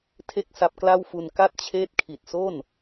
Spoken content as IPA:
tʰe˥˩k̚sa˦˥p̚kla˥˩wfu˧n ka˥˩t̚t͡ɕʰeː˦˥t̚kʰi˨˩t̚so˥˩n

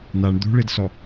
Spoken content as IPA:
naɳ d̪ṳɭidsɔ

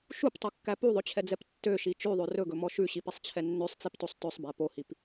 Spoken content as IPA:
ʃuptˤukːæ puðˤɵt͡ɕʰɛd͡zɛp tːøʃi t͡ʃʉðˤø rɵɡɵmɔ ʃʉɕipisˤt͡ɕʰɛ nːøsˤt͡siptosˤ tɵsˤbæ pohip

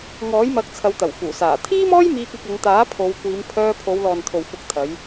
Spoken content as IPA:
ŋɔː˨˥jmɐ˨˥k̚ t͡sʰɐ˨˧wt̪ɐ˨˩wfuː˨˩saː˨˩ t̪ʰiː˥mɔː˥j miː˧k̚ɐ˧k̚ɐ˨˧ŋt̪aː˨˥ pʰo˨˧wkʷiː˨˧m pʰœː˧pʰo˨˧w lɔː˨nt̪ʰo˨w fʊ˨˥k̚ t̪ʰɐ˨˧j

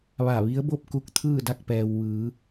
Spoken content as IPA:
ʋa˧˩ʋi˧˥ə̯bo˥˨p̚ ku˥˨k̚ t̪ʰɯː˥˨da˥˨k̚pɛː˩w ʋɯː˩˧

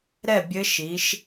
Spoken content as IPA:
ɾɛ˥˩bʲɘ˧˥ʃi˩˧ʃ

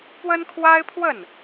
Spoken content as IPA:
pwə˥nkʰwa˥ɪ̯pʰwə˥˩n

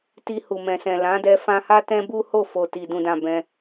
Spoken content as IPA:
ti˧hu˨mɛ̃˨sɛ̃˨ lã˨˦dɛ˧ fã˧ha˦ tɛ̃˦bu˦ho˦˨fo˨ ti˨ dũ˨dã˨ bɛ̃˧

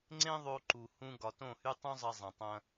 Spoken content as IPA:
ŋ͡ǀẽ˦ðˤo˧ǃu˨ hũ˧ ɡɒ˨tõ˦˨hy˦ tˤũ˦zˤɐ˧ zˤɐ̃˨tˤɐ̃˧

